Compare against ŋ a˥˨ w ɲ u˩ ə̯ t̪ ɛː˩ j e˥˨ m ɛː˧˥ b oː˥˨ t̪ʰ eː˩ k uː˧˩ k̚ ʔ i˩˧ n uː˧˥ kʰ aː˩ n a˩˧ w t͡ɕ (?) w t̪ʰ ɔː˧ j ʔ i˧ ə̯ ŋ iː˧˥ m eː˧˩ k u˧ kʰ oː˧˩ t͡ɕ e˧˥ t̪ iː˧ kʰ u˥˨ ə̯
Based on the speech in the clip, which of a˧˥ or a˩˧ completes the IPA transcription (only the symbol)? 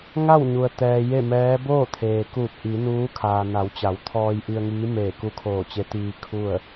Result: a˩˧